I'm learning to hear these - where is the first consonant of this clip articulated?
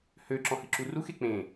throat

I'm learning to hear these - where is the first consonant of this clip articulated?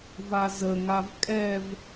lips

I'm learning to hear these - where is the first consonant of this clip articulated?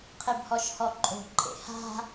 uvula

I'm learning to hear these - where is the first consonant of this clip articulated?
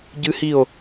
palate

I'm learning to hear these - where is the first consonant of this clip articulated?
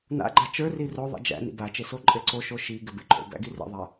tongue tip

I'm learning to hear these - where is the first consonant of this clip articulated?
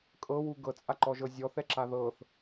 velum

